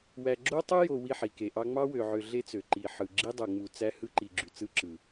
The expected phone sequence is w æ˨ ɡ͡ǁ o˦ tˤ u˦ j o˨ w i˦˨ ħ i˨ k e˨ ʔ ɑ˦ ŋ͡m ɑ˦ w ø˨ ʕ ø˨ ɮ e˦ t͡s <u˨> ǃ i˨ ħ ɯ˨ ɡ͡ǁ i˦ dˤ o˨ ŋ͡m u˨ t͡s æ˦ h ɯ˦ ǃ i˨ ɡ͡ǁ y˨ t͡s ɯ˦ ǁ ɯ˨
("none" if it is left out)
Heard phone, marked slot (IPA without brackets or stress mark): ø˨